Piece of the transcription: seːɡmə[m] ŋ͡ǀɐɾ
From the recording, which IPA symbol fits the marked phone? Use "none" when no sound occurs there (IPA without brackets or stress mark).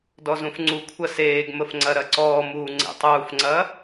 f